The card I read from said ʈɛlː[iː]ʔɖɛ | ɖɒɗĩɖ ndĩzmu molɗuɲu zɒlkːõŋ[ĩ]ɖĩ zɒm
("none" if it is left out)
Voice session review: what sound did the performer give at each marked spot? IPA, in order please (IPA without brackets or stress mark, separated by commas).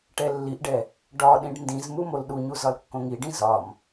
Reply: i, i